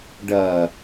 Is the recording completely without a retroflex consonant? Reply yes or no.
no